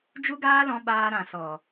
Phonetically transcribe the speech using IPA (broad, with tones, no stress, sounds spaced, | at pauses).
d͡ʒ u˦ ɡ aː˦ l ɔ̃˧ ɓ aː˧ ɾ ã˨ s ɔ˨